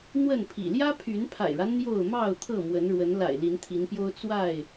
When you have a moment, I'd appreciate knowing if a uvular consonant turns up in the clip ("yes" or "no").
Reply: no